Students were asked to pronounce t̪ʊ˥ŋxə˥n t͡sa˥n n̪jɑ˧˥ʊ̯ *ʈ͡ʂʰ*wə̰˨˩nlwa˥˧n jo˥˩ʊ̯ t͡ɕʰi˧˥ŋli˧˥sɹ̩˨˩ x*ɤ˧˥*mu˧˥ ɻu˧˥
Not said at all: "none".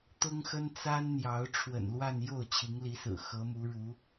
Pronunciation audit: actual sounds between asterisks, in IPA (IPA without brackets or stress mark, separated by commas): ʈ͡ʂʰ, ɤ˧˥